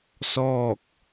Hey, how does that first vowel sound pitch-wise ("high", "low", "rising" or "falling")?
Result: falling